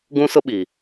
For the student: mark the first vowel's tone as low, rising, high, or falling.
high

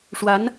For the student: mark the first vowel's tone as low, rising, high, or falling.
rising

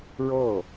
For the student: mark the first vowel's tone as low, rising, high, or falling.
falling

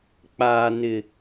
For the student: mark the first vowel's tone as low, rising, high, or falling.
low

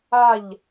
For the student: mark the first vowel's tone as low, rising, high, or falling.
falling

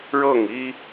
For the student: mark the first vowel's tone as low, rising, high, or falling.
falling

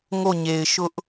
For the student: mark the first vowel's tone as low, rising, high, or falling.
falling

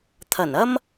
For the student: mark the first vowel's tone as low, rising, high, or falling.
low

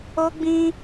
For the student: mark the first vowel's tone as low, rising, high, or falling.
high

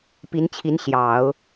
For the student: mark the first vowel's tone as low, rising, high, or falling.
rising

